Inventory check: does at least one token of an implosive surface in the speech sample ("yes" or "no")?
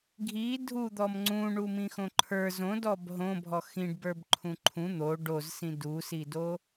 no